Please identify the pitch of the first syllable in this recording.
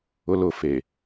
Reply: high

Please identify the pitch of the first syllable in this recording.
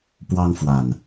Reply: high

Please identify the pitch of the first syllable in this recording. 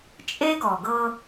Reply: high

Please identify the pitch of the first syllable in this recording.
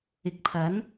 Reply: low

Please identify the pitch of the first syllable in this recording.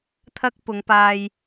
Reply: high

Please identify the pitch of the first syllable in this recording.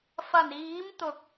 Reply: low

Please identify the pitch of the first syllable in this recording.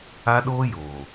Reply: high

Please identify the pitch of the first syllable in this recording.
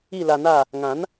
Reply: falling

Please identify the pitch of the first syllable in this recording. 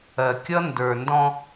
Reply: low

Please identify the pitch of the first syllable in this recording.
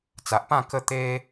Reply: low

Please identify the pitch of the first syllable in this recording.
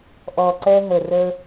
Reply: low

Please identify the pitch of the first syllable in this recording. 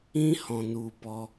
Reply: high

